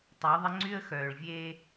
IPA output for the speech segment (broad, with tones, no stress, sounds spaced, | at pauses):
tˤ ø˨˦ ðˤ ə˦ ŋ͡ǀ y˦ ə̯ x œː˨ ɭ vʲ e˦